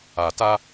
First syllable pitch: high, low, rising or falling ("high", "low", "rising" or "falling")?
low